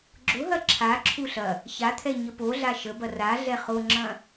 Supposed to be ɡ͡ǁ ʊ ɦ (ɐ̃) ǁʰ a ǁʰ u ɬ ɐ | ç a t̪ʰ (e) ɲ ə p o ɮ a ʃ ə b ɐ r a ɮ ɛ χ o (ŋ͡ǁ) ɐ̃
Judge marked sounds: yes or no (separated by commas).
no, no, yes